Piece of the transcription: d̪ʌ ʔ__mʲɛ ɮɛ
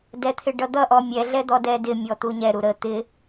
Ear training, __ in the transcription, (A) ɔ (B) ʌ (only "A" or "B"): A